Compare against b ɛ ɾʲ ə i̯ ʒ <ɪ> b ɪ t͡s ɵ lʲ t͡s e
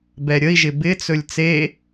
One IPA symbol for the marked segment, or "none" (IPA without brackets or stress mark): ɪ